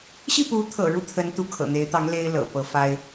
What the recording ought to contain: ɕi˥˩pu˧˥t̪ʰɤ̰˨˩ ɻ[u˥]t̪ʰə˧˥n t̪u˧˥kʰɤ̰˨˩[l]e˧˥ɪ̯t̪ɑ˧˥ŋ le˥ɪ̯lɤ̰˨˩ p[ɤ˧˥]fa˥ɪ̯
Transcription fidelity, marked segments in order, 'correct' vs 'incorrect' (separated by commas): incorrect, incorrect, correct